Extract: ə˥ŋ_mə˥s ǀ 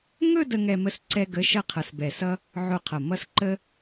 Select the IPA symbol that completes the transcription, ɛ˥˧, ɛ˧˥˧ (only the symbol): ɛ˥˧